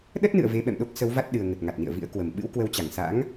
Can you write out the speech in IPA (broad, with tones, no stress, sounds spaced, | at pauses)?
ɗ ə˦˥ t̚ n ɨ̰˧˨ ə̯ v e˨˦ ɓ ɛ̰˧˨ m ɗ o˦˥ k̚ s ə˨˦ w v a˦˥ t̚ ɗ ɨ˨˩ ə̯ ŋ ə˨˩ t̚ ŋ a˨˩ t̚ n ḭ˧˨ ə̯ v ḭ˧˥ ə̯ k w ə˨˩ m ɓ ɨ̰˧˥ w k w ə˨˦ w t͡ɕ a˧˩ ŋ s a̰˧˥ ŋ